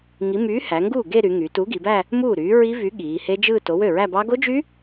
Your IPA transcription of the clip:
ŋ i˨˥ m yː˨˥ h æ˩˧ ŋ ɡ uː˥˩ ɡ e˥˧ ɾ y˩˧ ŋ y˩˧ t u˨˥ ɡ i˩˧ b æ˥˧ | m uː˥˩ ɾ yː˨˥ ɹ i˦˥ v y˨˥ ɠ iː˩˧ h e˦˥ d͡ʒ ɯː˥˧ t o˨˥ w ø˥˩ ɹ æ˥˧ b ɑ˦˥ ɡ o˦˥ d͡ʒ y˦˥

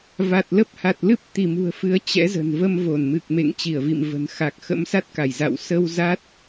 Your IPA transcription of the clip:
v a˨˩ t̚ l ə˦˥ p̚ h a˨˩ t̚ l ɨ˦˥ p̚ t̪ i˧˩ m ṳ˨˩ ə̯ f ɨ˨˦ ə̯ t͡ɕ ɛ̰˧˥ z ə̤˨˩ n v ə˧ m v o˧˩ n m ɨ˨˩ k̚ m ḛ˧˨ ŋ t͡ɕ i˧˩ ə̯ v ḭ˧˨ m v ə̤˨˩ n x a˨˩ k̚ x ə̰˧˥ m s a˦˥ t̚ k a˧˩ j z a̰˧˨ w s ə˧ w z a˦˥ t̚

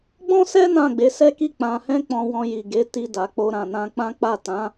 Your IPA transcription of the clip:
ɡ͡b ɔ̃˦ s ɛ˦ n ã˦˨ ɡ͡b e˨˦ s ɛ˦ k i˦˨ k͡p ã˧ h ɛ̃˦ k͡p ɔ̃˧ w ɔ̃˧ j i˨ ɡ e˨˦ t i˧ d a˨ k͡p o˧ ɾ ã˨ n ã˧ k͡p ã˦ k͡p a˦˨ t ã˨˦

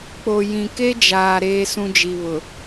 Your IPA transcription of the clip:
k͡p o˨ j ĩ˨ k e˦ d͡ʒ aː˨ ɾ eː˦ s ũ˦ d͡ʒ i˨ β ʊ˨

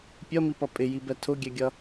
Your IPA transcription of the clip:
pʲ ʌ m i p ʌ pʼ ɪ j i b ɛ tʰ ʊ ɡʲ ɛ ɡʲ ʌ

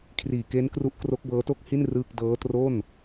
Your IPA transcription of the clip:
kʰ r iː˨˩ k e˦˥ n k r u˦˥ ʔ k r o˦˥ k̚ b ɤː˦˥ t o˥˩ k̚ h i˥˩ n r ɯː˥˩ k̚ d ɤː˦˥ t r o˥˩ n

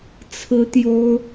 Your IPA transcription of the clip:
t͡sʰ ɹ̩˥ t̪ j o˥ ʊ̯

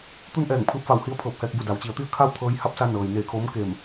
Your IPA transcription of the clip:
t̪ u˥˨ n ʔ ɛː˧˩ ŋ pʰ ɯː˧ p̚ f a˧˩ w h i˧˥ ə̯ pʰ ɤː˧˩ p̚ h ɛː˧ k̚ b u˧˩ d a˩˧ w t͡ɕ i˩˧ ə̯ t̪ i˥˨ ə̯ kʰ a˥˨ w t̪ʰ ɤː˧ j h a˧˥ p̚ s a˧ n ɤː˩ j n eː˧˩ kʰ oː˧˥ m k e˧˩ m

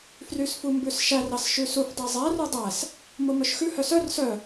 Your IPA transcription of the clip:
f r y s f u m b ʉ s ʃ æ r ɑ s ʃ ʉ s u f dˤ i zˤ æ r u dˤ æ s | m o m œ ʃ x ʉ h œ s œ r s œ

